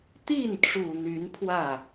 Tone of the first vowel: falling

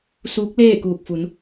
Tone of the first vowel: rising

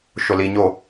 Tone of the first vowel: low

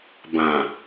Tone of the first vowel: low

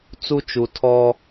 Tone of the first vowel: high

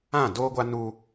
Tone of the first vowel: falling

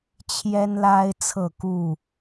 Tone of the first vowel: high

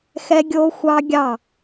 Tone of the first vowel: high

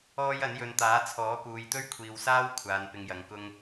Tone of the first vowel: high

